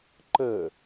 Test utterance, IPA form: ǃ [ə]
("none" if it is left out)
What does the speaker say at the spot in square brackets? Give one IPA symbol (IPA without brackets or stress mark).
ə